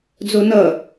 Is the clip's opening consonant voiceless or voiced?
voiced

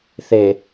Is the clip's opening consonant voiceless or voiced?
voiceless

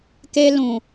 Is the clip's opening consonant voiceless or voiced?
voiceless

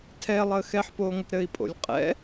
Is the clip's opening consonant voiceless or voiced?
voiceless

